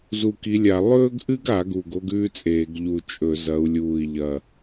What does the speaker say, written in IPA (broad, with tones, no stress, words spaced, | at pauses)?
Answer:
zu˧˩ki˨˦lʲa˧˩˧ lˠɵː˥ɡʔɨ˥ɡa˧˩˧ ɡu˧˩ɡo˥ɡʉː˥t͡sʼeː˧˩˧ɡ ʎu˧˩t͡ʃʼɵ˧˩˧zɐ˨˦u̯ lʲuː˧˩i̯ʎɐ˧˩